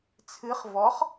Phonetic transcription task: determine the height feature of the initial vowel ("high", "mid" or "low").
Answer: high